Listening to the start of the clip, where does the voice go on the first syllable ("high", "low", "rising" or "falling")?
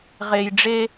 low